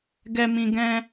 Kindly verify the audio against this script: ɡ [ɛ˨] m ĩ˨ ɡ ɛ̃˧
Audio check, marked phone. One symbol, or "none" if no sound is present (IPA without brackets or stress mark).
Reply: ɛ˨